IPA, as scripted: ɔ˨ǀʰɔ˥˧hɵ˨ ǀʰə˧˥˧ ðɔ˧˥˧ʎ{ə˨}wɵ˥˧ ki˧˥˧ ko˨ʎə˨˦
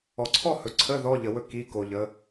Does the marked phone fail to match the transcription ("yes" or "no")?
no